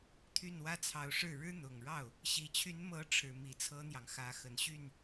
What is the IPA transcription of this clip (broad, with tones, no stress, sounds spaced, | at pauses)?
t̪ʰ y˥˩ n w ä˥ t͡sʰ ɑ˧˥ ʊ̯ ʂ ɻ̩˥˩ ɻ ɻ̩˥ n̪ ʊ˨˩ ŋ ɻ ɑ˥˩ ʊ̯ | ɕ i˨˩ t͡ɕʰ y˧˥ n m ɤ˧˥ ʈ͡ʂʰ ɻ̩˨˩ m i˧˥ t͡sʰ ɤ˥ n̪ j ɑ˨ ŋ x ä˧˥ x ə˨˩ n ɕ y˥˩ n